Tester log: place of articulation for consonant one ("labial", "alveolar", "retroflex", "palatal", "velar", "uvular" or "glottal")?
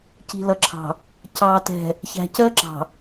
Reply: palatal